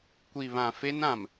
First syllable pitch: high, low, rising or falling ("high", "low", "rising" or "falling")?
low